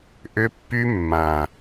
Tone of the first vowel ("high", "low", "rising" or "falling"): high